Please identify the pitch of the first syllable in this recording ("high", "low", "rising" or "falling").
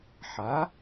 rising